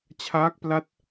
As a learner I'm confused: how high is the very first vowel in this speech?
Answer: low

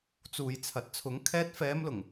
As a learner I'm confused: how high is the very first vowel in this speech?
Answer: high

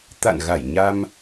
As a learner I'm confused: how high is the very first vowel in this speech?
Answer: low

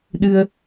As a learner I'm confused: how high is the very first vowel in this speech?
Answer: high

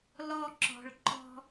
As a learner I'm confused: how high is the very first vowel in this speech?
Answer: mid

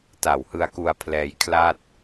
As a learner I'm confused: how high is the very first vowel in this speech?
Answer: low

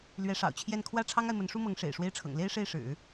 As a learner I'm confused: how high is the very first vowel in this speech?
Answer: mid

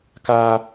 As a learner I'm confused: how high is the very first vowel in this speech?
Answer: low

